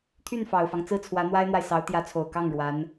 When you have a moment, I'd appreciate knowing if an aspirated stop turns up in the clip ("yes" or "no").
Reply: yes